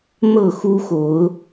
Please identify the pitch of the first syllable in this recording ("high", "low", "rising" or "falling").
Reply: falling